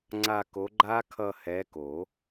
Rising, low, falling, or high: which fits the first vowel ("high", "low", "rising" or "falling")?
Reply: falling